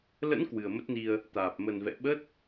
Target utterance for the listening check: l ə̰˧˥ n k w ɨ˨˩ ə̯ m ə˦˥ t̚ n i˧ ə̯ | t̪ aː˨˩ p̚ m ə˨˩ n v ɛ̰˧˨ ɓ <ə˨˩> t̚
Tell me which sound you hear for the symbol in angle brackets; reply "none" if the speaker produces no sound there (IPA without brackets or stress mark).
ə˦˥